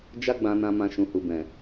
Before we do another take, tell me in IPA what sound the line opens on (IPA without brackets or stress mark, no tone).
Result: d͡ʒ